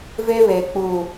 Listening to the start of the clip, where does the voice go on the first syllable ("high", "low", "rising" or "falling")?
high